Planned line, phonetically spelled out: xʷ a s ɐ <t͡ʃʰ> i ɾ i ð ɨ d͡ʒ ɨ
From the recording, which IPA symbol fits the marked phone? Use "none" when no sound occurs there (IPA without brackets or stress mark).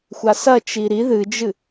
t͡ʃ